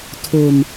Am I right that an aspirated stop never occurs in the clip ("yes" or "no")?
no